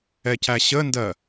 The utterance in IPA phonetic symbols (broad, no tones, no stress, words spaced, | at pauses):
ɛcæɕəndɜ